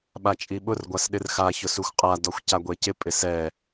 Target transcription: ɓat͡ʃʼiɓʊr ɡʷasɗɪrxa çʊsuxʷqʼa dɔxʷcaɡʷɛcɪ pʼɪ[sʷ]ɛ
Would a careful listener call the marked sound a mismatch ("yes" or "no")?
yes